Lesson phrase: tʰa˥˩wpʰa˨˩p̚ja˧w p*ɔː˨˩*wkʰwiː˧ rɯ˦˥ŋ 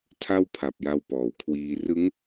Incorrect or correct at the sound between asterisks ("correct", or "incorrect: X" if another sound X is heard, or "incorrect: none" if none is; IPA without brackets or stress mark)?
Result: correct